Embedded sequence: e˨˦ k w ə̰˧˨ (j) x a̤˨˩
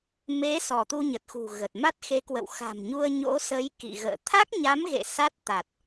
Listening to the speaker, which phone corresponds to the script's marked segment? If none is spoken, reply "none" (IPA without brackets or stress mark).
w